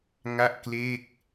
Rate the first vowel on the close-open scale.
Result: open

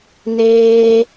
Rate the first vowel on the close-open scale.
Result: mid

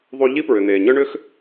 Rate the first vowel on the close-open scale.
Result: close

